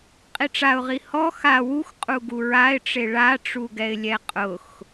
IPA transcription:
qʼiʈ͡ʂaʊ̯ʁi hɔ xa wux qʼuɡuɹaɪ̯ʈ͡ʂe ɭaʈ͡ʂuɡɛɪ̯lʲɛ qʼʊx

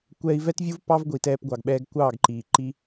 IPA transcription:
kʷɛː˧i̯vɛ˦tvʲu˦v pɑ˦vɡʷi˨ tɛː˧pɡʷɑ˨ɡɓɛː˧ɡ kʷɑː˦˨ɡǃiː˨ ǃi˧

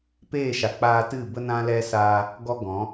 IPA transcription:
peː˦˨ʃa˨ k͡paː˧tɨ˦˨bə˦ nã˦lɛ˦saː˦ | ɡɔ˦ɡɔ̃˨˦

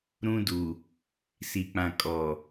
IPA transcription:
ɾũ˦du˨ | si˨k͡pã˨kʼɔ˨

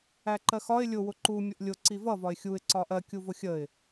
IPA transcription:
æǃɜxɒɪ̯ lʲʊ wʊǃu mʲʊʔlʲʊ ǀivʌ vɒɪ̯xʲuɪ̯ ǀɒʔɜ kʲuvʊxʲəɪ̯

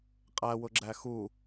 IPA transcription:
qʼæwʊɡ͡ǁæ xu

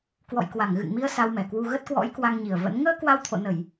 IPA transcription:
kwɔ̰˧˨jkwa˧˩ŋɣɨ̰˧˨ŋmi˧ə̯ sa˧wmɛ˧˩kwu˧ ɣə˦˥t̚kwɔ̰˧˥j kwa˧ŋɲi˨˩ə̯və̰˧˥n ŋəː˧ kwa˧wt̪ʰo̰˧˨nə˧˩˨j

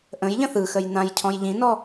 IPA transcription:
ʔə̃jʎə̃ θɯxəj nãjcʰɔ̃j ʎĩnɔ

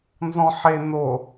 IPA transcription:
nzɔ̃ħe no

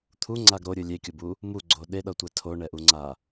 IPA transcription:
t̪ʰuŋ͡ǀaɡ ɾoɾʲɯ lʲekʲobu | muɡ͡ǀo ɗeɗʌtʷɛ tʰoɳɛʔuŋ͡ǀa

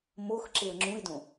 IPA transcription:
mox ǁeə̯ŋ͡ǁũɪ̯dõ

